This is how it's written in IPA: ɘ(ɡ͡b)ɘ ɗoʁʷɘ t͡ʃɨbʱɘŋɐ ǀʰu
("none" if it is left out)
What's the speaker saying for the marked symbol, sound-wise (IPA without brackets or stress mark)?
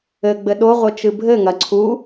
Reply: ɡ͡b